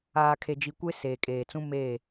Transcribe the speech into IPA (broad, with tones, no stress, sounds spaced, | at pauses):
aː˨ kʰ e˨ d͡ʒ i˨ kʷ e˦ s eː˨ kʼ eː˨ t͡s ũ˦ m e˦˨